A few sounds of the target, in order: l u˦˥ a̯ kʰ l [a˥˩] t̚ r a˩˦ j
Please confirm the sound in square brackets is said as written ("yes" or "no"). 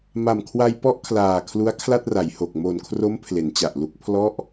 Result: yes